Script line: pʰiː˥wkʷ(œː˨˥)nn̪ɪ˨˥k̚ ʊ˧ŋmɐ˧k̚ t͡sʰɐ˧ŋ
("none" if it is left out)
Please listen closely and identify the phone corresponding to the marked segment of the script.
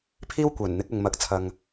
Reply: œː˨˩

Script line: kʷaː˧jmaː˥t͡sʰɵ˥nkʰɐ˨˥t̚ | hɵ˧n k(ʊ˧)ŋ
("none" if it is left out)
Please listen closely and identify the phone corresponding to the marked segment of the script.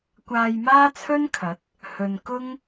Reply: ʊ˥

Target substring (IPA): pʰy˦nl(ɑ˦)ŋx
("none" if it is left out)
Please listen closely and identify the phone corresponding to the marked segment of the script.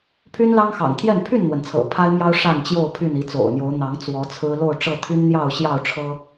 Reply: ɑ˦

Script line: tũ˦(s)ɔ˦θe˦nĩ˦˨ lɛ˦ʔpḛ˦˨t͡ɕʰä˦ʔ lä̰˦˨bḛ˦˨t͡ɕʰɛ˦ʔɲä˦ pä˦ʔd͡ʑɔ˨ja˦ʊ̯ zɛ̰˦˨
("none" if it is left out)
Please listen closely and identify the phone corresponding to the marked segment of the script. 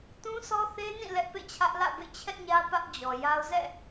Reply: s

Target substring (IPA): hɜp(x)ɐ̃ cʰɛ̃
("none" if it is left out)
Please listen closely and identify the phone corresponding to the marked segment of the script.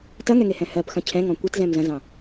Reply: x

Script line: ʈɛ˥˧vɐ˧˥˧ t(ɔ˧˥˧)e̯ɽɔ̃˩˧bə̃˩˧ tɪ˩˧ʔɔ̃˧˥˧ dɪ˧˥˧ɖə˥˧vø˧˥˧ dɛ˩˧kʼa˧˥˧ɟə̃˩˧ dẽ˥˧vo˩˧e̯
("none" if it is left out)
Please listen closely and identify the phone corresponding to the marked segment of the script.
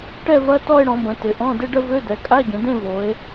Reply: ɔ˥˧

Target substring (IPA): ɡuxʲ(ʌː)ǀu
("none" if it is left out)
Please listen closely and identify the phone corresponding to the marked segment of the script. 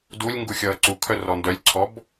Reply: ʌː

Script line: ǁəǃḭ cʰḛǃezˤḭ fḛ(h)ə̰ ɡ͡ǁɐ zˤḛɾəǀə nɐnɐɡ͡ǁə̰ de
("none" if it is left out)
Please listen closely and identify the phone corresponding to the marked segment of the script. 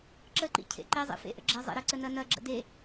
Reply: ʔ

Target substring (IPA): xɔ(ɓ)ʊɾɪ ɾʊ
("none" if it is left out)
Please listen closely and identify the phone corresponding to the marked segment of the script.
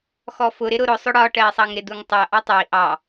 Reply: f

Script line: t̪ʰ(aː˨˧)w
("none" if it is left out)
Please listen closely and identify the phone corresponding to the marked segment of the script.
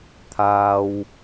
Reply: aː˥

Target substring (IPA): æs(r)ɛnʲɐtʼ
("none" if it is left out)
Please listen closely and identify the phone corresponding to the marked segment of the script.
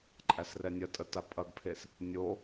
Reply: r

